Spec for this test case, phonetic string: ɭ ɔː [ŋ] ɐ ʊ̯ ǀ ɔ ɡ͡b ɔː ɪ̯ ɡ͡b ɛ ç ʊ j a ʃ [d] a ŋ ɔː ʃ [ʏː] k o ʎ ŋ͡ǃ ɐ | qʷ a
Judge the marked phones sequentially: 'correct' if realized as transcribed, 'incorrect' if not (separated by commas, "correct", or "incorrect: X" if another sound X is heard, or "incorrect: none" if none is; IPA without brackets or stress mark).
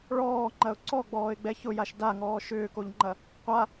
incorrect: ŋ͡ǃ, correct, correct